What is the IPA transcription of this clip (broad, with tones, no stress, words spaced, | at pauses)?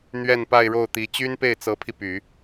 n̪ɥɛ˥˧npa˥˧ɪ̯ɻo˥˩ʊ̯t̪i˧˥ t͡ɕy˥npe˥˩ɪ̯t͡sɤ˧˥pʰi˧ py˨˩˦